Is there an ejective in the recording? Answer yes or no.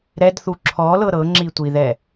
no